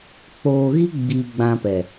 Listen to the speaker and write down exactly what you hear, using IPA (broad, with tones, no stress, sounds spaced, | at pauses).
k͡p oː˧ ɣ i˦ ɡ͡b iː˧ ɡ͡b ã˧ p ɛ˨